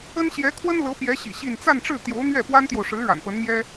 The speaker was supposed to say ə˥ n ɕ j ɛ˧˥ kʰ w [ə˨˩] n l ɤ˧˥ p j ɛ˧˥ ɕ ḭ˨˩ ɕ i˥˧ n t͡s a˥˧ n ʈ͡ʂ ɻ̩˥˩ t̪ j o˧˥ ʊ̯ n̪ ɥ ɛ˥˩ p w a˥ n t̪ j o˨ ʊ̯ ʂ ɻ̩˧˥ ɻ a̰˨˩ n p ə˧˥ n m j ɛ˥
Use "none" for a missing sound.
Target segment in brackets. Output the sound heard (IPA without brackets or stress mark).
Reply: ə˥